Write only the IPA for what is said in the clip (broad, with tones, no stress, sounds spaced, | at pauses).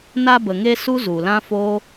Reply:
n a˧ b ə˨ ŋ e˧ s u˦ z u˨ l ã˦ f oː˦